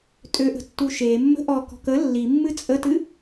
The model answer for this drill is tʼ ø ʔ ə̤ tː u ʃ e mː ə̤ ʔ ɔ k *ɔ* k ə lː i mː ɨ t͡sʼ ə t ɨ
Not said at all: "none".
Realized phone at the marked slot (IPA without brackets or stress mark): ɔ̤